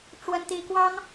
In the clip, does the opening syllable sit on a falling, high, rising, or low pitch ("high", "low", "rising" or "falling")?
high